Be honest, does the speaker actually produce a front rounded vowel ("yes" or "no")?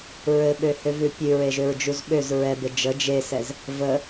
yes